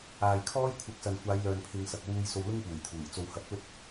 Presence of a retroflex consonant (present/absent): absent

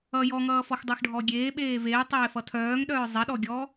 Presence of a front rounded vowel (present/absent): present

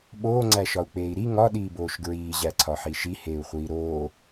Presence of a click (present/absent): present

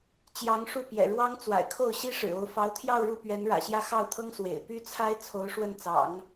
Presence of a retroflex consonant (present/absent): present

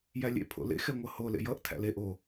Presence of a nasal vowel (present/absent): absent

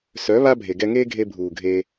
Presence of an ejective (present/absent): absent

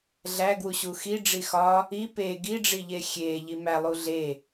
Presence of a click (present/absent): absent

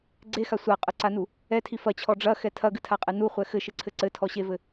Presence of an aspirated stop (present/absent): present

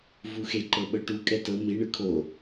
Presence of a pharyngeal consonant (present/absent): absent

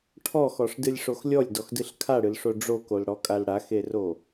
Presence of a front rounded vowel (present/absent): absent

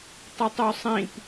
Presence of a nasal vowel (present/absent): present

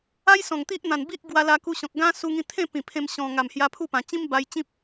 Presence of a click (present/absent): absent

